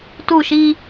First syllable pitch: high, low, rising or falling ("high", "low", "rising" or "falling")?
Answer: falling